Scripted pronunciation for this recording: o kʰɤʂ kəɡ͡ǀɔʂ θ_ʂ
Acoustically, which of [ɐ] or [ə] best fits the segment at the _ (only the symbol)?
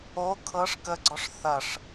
ɐ